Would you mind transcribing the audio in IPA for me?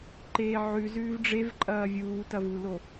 ǃ eː ʕ ʉ z ʉː v ɖ͡ʐ e v ǃʼ ɐː vʲ uː t ɐ v u l o

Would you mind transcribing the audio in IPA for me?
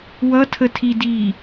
w ʌ tʰ ə tʰ i d iː

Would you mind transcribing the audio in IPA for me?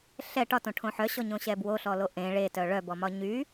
ɬ ɛ ʈ ɒ t õ ʈʰ õ ħ œ ɕ ɔ ɲ õ ɕ ɛ b w o ɬ ɔ l o ʔ ẽ ɭ e t œ ɭ œ b ɔ m ɒ ɲ y

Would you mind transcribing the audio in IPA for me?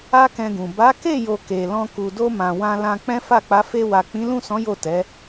a˦ k ɛ̃˧ ɡ ũ˨ b a˨˦ k e˦˨ j o˨ k e˨ l ɔ̃˧ k u˨ d o˧ m ã˨ w ã˧ l ã˧ k͡p ɛ̃˦ f a˦˨ k͡p a˨˦ f e˧ w a˨ k͡p ĩ˨˦ l ũ˦˨ s ɔ̃˨˦ j o˦˨ t ɛ˨˦

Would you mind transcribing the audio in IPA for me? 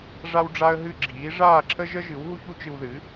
ʐ a˥ w ɖ͡ʐ a˥ ə̯ ɦ ɨ˥˩ ɡ͡ǁ iː˩˥ ʐ aː˥˩ ǁʰ ə˥ ʒ ə˥ ʒ ɨ˩˥ w ɦ u˥ ç u˥ t͡ʃ ɨ˧ w ð ɨ˩˥

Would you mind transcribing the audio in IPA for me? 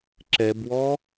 ǁ ɛ b w ɔ

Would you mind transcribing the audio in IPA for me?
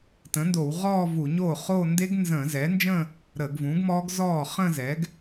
t ə̃˩˥ n d o˧˩˧ w ʁ ɔː˥˧ v u˧˩˧ ɲ oː˥˩ χ oː˥˧ n d e˦˥ ɡ n z ə̃ː˧˩˧ z ɛː˩˥ n d͡ʒ ə̃˥˧ | ɾ əː˧˩˧ ɡ v ũ˩˥ ɡ m ɔː˦˥ ɡ z ɔː˥˩ χ ə̃ː˥˧ z ɛ˩˥ ɡ

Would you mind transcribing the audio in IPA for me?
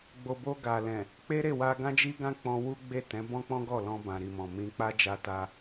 ɡ͡b o˨ b o˧ ɡ a˨ l ɛ̃˨ | k͡p e˦ ɾ e˦˨ w a˧ ɡ ã˦ d͡ʒ i˦ ɡ ã˦ k͡p ɔ̃˧ w u˦ ɡ͡b e˦˨ t ɛ̃˨˦ b ɔ̃˦ k͡p ɔ̃˦ ɡ ɔ˦˨ l ɔ̃˧ b ã˨ ɾ i˨ m ɔ̃˨ m ĩ˧ k͡p a˦ d͡ʒ a˧ t a˧

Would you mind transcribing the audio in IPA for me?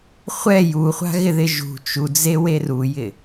χʷ ɛ j u χʷ a̤ ɣ ɪ ð ɪ ʒ ṳ t͡ʃ u d͡z e w e r u j ɪ

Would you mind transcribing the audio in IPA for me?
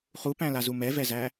χ u p æ̃ l a z u m ɛ v ɛ z æ

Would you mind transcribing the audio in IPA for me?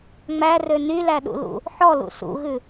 ŋ͡m æ r ø n y l æ ɗ ṵ l ṵ | ħ ɔ l ṵ s ṵ ɣ ʉ

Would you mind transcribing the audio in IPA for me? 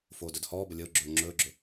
f oː d ɵ d h ɔː b ə lʲ ə ʊ̯ ɡ͡ǁ ɵː ŋ͡ǁ ɵː ɡ͡ǁ ɵ

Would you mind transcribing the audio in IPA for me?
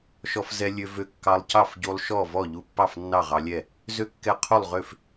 ʃ ɔ˧ f z ɛ˧ lʲ ø˧ v ø˧ kː ɑ˧ lˠ c ɑ˥˩ f ɟ u˧ lˠ ʃ ɔ˥˩ v ɔ˥˩ ʎ u˧ pː ɑ˥˩ f nː ɑ˥˩ ʁ ɑ˧ lʲ ɛ˥˩ | z ø˥˩ kː ɛ˧ qʰ u˥˩ lˠ ʁ ø˥˩ f

